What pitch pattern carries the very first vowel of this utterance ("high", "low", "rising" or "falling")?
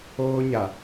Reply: high